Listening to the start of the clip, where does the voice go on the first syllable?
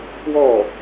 falling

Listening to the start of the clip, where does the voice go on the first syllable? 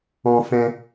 high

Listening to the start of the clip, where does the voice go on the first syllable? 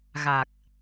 low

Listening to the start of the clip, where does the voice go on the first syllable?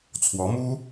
rising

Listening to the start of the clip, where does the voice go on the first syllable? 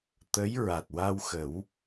rising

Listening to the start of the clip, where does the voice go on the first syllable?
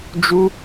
high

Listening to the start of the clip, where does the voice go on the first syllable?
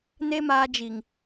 high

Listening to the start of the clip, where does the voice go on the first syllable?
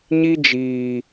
high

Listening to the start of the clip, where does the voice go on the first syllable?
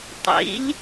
rising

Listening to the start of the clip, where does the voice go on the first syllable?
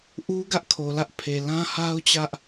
high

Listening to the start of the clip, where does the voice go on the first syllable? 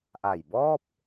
low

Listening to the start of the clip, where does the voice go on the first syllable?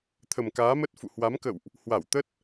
low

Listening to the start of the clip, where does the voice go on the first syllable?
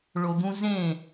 low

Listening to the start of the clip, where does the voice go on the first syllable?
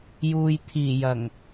low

